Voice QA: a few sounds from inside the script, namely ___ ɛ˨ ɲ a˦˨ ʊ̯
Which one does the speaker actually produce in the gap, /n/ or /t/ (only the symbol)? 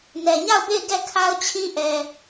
n